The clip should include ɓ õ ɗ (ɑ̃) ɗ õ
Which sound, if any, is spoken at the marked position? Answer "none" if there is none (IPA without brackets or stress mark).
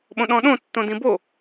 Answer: ɔ̃